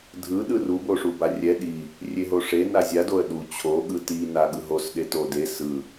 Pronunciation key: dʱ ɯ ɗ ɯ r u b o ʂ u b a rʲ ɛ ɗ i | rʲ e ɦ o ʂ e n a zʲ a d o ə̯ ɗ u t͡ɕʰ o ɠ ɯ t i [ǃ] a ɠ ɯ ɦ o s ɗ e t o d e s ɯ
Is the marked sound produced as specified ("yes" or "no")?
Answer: no